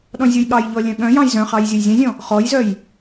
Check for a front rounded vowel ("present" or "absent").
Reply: present